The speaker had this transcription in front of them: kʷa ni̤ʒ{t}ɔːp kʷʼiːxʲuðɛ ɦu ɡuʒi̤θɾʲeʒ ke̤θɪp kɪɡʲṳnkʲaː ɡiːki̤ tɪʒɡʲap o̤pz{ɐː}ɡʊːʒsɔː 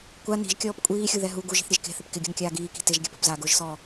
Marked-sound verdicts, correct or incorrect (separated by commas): incorrect, incorrect